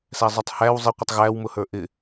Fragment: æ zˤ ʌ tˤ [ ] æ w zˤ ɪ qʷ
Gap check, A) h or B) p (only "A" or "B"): A